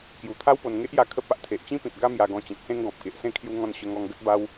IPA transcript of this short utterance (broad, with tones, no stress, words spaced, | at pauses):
kju˨˩t̪ʰa˦wpo˧nŋe˦ʔ ja˦kʰə˦p̚ a˨ʔt̪ʰe˨ʔ t͡ɕĩ˦pĩ˨t̚ ɡa˦mja˧ ɡɔ̃˧t͡ɕẽ˨k̚sẽ˦ŋ ɡɔ̃˨p̚ke˨ʔsẽ˥˧ kʰju˧ŋɔ̃˧n ɕə˧ŋɔ˧ŋ ɡə˦t̚ba˦w